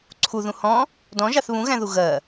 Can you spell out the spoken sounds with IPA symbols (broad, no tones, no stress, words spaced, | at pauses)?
ǀʰuðũ hɔ̃ | dɔ̃ʒɑθ βũɣæ̃ðu ɣɜ